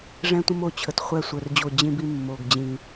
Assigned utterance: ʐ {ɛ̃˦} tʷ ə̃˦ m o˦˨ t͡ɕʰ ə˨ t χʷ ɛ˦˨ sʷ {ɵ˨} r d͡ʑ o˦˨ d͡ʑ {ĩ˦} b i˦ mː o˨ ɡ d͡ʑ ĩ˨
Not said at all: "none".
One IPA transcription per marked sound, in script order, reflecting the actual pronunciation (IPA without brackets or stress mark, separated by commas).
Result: ɛ̃˦, œ˨, ĩ˦